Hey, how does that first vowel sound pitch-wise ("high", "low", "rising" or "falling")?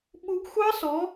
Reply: rising